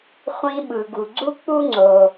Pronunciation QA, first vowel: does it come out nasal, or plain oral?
nasal